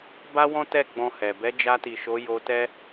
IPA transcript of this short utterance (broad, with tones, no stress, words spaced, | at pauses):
ba˦wɔ̃˦tɛ˦˨ ɡ͡bɔ̃˧hɛ˨ bɛ˨˦ d͡ʒa˧ti˨ ʃo˨˦jo˧ tɛ˦